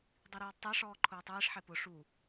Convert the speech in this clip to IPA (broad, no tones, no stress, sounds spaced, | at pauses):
dˤ i ɾ ɔː d tˤ ɛ ʂ ɔː ǃʰ ʊː tˤ iː ʂ ħ ɛ p ʊ ʂ u